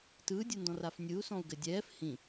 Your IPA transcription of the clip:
tɯːdʲɯndɔ̃raf nʲɯu̯sɔ̃u̯ɡɘ dʲɛːf hĩ

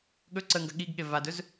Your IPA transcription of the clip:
ɠɵ ǀəŋɡɐ ɠiɡɠe vadɵz

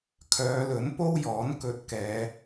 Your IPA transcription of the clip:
kʰœː˨˧lɵ˨˥npo˥w jɔː˨˥n kɵ˧t̚kɛː˨˧

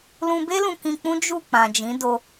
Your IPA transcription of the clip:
lũ˧be˦ lũ˧kĩ˧k͡pũ˦ d͡ʒu˦˨ k͡pã˨d͡ʒĩ˨˦do˧

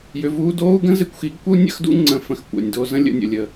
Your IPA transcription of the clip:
jʏ˨vuː˧doː˦u̯ ɡə̃˦zɪ˧kʷxi˨˦ɡkʷə˦u̯ nʲə̰˦xdṵ˦ ŋ͡ǀə̃˧fə̃˧x kʷɛ̰˨nʲdo˧ zə̃˦lʲə̰˧nʲə̰˨ lʲə˧

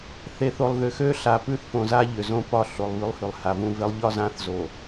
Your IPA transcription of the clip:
θe˨θo˨lˠðʏ˨xø˦ ɬa˨pʉ˦θfõ˨ za˦ʎʏ˨zõ˦ pɒ˦ɬo˨lˠ βʉ˦lˠhʉ˨lˠ ha˨vũ˦ve˦lˠ ʎɒ˦zã˦θ zo˨

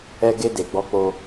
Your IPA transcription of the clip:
ɛ˧ ɡe˧de˨ɡ͡bɔ˧k͡po˧

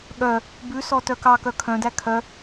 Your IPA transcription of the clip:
ɠœ | bʉsɔ tœkɑkœ kʰœ̃dæ kʰœ

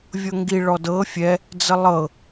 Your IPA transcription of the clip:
vʲɤŋɡi ɭɔdɤ fʲɛ | d͡zəlˠɤ

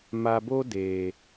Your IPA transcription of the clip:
ma˨bo˦ deː˨

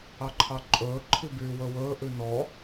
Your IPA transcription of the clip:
ɑǃʰɑǃʼɵː ǃʰibyːwɵwɵː ʔʉnɔ

